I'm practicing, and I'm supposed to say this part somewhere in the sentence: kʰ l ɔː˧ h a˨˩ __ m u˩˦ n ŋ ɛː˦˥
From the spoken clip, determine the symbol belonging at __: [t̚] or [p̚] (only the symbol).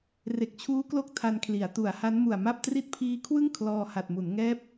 t̚